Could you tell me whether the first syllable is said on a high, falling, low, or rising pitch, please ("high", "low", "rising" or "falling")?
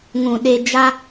low